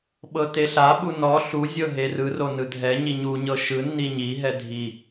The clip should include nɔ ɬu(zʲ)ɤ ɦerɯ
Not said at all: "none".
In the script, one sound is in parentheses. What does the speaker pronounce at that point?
zʲ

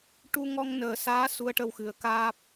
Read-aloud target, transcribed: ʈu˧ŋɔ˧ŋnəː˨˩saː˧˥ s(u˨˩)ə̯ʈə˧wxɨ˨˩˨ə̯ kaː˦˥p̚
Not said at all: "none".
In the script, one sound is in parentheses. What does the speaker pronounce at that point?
u˧˥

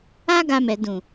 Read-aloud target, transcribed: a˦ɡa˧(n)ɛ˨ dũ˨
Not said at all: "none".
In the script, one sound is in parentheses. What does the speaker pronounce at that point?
m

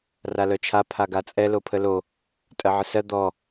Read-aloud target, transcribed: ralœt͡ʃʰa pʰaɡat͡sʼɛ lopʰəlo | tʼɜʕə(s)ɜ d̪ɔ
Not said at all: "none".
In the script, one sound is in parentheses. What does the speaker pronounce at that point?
s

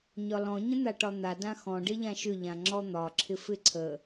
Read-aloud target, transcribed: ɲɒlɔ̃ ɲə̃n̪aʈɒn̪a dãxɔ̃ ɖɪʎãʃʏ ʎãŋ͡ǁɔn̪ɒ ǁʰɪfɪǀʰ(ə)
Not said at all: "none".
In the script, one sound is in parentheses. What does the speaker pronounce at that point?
ə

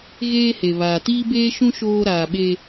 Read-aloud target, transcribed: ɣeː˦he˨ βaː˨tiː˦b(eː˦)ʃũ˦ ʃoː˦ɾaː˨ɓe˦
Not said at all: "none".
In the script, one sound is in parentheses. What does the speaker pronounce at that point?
eː˦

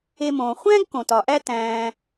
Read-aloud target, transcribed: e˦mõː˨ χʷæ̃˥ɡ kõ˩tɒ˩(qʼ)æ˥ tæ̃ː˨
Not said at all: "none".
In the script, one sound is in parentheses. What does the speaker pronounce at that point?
ʔ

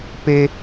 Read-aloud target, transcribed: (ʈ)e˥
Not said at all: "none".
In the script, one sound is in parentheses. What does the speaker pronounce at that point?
p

